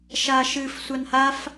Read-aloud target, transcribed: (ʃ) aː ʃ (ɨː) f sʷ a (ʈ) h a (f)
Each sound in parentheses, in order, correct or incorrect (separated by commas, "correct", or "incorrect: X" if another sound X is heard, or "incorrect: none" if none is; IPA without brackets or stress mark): correct, correct, incorrect: n, correct